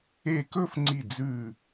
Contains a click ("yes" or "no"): yes